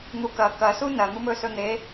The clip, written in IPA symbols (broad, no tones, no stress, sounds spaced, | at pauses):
n̪ u k ɐ k ɐ s u n ɐ n̪ u m ɵ s ɵ n̪ e